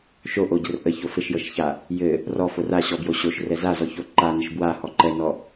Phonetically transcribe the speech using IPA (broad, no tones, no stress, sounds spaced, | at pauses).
ʃ o ʔ o ɟ ə r ʔ ə ç o f ɘ ʃ j ɤ ʃ ç a | j ɘ | r ɔ f o r a ɕ ɔ b j o ɕ o ʃ r ɛ z a z ɔ ç o ǃ a n ə ʃ b w a h ɔ ǃ ɛ n ɔ